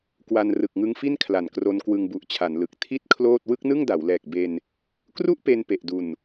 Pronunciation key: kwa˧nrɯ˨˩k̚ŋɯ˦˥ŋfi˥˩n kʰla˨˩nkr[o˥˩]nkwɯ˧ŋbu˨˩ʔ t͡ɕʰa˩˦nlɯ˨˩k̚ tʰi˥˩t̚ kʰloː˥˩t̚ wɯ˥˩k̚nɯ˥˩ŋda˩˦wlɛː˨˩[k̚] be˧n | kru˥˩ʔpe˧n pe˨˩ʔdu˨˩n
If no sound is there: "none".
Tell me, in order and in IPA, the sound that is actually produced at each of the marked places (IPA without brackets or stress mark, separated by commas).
o˧, k̚